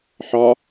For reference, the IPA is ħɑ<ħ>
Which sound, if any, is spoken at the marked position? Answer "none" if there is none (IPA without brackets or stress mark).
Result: none